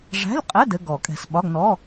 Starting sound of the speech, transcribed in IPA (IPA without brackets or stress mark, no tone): ʐ